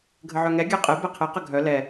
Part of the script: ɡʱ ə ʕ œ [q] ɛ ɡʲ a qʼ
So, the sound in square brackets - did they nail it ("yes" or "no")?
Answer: no